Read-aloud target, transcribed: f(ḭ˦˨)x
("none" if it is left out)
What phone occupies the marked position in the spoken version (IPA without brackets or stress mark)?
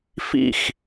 ḭ˦˨